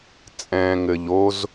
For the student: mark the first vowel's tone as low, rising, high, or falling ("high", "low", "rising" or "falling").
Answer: low